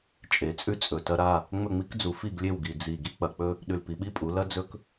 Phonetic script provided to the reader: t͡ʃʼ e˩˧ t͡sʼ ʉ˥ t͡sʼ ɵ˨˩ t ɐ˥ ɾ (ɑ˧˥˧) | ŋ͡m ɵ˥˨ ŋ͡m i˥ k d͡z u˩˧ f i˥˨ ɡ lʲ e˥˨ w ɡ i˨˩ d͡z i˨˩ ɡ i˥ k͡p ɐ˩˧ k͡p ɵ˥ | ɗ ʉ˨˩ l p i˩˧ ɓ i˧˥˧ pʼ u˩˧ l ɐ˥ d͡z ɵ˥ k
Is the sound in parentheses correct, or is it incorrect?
incorrect